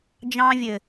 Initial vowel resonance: nasal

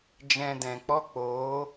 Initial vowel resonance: nasal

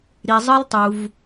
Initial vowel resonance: oral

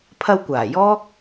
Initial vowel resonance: oral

